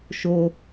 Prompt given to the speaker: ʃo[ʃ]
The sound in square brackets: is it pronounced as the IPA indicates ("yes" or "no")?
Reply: no